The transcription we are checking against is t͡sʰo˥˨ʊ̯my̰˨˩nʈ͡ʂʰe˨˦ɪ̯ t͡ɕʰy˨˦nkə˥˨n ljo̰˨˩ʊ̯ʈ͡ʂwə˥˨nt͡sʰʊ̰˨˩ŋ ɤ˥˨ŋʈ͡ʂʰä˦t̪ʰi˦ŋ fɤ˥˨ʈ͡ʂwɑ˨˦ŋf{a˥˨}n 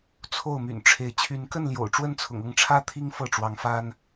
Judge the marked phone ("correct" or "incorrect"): incorrect